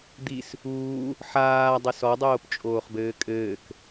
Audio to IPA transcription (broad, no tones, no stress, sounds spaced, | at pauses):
d̪ i s | uː | ħ aː dˤ e s ɔ dˤ oː p t͡ʃʼ oː χ b ɘː kʼ ɘː k